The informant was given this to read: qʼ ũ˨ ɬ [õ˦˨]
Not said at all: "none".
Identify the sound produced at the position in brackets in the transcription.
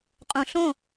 õ˦˨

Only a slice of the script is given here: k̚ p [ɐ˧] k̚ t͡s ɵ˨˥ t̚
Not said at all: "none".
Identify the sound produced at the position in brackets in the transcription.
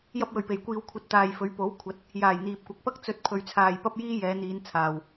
ɐ˥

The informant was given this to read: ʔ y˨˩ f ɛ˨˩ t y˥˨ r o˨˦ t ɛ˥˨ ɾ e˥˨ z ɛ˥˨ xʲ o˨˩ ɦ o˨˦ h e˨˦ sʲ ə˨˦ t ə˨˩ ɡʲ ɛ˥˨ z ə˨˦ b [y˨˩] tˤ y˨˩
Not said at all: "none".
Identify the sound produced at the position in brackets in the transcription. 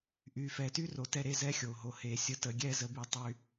y˨˩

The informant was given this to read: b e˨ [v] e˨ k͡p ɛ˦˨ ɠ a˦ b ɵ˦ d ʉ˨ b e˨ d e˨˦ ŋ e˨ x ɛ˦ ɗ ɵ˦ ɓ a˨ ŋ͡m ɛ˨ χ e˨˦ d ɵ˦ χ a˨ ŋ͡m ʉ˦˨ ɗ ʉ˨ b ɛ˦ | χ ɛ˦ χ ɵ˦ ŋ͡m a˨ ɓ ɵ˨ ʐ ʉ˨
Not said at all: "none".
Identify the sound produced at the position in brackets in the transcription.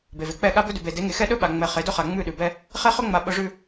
v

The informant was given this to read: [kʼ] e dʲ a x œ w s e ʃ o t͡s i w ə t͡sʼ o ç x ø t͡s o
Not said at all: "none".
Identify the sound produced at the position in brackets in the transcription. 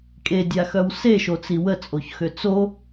kʼ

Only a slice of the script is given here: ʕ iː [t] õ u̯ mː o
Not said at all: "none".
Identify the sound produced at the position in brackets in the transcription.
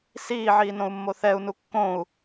n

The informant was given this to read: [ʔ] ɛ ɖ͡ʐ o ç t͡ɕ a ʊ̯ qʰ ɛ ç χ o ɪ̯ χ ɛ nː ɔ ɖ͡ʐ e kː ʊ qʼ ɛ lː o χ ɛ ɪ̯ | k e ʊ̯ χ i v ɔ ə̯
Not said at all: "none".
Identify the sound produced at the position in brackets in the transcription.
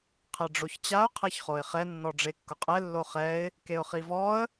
qʰ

